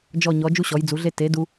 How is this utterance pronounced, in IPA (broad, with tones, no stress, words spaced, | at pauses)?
d͡ʒɔ˦˨ɲɔ˨˦ d͡ʒu˥ɕɔ˨˦jd͡zu˨˦ɮe˥ te˨˦ du˥